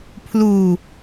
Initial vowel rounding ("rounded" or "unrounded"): rounded